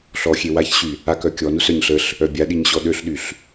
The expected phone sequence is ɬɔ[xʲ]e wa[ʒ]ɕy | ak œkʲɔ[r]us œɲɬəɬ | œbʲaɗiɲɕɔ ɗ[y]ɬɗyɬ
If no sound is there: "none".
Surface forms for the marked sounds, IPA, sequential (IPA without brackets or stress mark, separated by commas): xʲ, ç, n, ø